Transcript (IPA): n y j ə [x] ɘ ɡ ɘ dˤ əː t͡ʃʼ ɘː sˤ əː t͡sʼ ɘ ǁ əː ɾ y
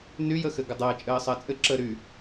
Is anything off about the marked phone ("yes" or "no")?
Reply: no